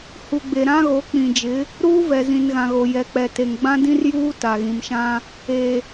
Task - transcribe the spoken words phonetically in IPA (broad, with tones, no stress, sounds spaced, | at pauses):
h u˨ ɡ͡b e˨ ɾ ã˦ ɣ o˨˦ k͡p ĩ˨ d͡ʒ ɪ˨˦ | ɾ uː˦ v ɛ˨ z ĩ˨ n ɣ ã˨ ɣ o˨ j ɛ˨ k͡p ɛ˨ t e˨ ŋ ɡ͡b ã˦ d ĩ˦ r j uː˦ t a˨ ɣ ĩ˨ m ʃ ã˦ | e˨